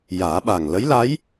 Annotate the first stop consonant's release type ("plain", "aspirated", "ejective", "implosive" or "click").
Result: implosive